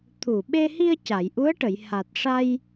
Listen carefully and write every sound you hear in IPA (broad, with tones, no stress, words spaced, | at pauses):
t̪ʰu˨˩ɓe˧hi˧ə̯ ca˨˩˨jʔu˧˥ə̯ʈə˨˩˨j ha˨˩t̚ʂa˧j